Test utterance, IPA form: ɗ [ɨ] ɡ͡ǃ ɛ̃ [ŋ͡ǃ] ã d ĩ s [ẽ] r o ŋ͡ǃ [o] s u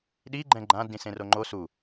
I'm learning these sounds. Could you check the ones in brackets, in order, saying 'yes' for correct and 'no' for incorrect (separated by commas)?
no, no, yes, yes